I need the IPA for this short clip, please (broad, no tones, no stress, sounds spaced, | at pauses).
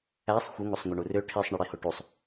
æ sˤ xʷ ə ŋ o sˤ ŋʷ ʌ ɳ u r ø ʈʰ i sˤ ɳ ʌ ɽ i h o ʈ u sˤ